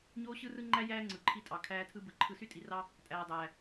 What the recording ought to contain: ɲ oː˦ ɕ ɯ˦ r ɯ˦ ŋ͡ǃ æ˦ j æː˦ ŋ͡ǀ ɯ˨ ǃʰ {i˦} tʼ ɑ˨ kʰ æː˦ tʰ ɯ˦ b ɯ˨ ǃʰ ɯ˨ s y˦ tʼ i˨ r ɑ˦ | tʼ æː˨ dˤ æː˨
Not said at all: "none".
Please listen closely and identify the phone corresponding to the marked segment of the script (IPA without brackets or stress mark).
i˦